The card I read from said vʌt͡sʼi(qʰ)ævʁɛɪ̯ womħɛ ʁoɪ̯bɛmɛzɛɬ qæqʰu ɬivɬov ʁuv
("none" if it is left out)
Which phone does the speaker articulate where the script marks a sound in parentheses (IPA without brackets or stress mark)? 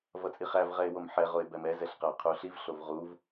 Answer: χ